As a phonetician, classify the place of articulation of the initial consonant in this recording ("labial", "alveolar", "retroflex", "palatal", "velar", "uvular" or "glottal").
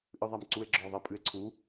glottal